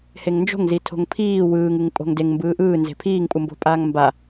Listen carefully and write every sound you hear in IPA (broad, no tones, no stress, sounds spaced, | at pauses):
h e ŋ n d͡ʒ o̤ ŋ z i tʰ o̤ ŋ pʰ iː w ɯː ŋ ɯ ŋ pʼ o̤ ŋ d e ŋ m b ɯː ʔ ɯː n z e̤ pʰ iː ŋ pʼ u m b o̤ pʼ aː ŋ m b a